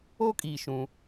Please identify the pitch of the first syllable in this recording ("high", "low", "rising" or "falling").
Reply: high